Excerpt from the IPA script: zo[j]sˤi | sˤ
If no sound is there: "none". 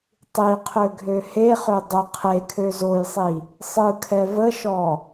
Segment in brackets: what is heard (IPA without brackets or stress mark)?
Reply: j